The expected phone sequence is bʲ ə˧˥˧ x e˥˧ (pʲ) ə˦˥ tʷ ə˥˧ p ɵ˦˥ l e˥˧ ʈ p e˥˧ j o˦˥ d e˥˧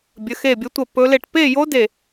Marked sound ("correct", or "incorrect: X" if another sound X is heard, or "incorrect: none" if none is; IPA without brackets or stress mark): incorrect: bʲ